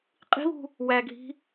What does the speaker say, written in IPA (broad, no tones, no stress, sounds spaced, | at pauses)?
qʼ i̤ β ṳ | w æ ɡʱ i̤